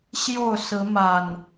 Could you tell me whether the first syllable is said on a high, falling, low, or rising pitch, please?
falling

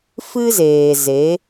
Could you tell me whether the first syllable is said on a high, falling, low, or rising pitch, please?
high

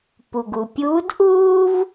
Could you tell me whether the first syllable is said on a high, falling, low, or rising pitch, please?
low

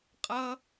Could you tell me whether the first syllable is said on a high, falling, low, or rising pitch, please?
high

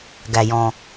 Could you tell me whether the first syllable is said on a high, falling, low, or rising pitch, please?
low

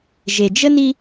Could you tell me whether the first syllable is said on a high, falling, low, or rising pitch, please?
low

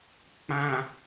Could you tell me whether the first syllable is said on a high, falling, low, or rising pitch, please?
low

